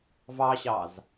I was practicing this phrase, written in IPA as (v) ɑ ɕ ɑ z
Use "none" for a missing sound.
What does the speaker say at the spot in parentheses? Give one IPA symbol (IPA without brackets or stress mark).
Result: v